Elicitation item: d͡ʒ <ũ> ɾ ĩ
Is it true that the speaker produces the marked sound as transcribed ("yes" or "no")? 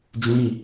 yes